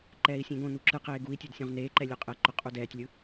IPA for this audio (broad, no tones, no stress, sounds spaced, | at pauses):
ǃ ɛː i̯ sʲ ẽ ɡ õ n u ǁ ɯ q eː ɡ u i̯ tʲ ɵ d sʲ õ ʁ n eː ǃ ɛ lʲ u qʼ ɛ ǃ ɵ qʼ u d ɛː tʲ lʲ ɯ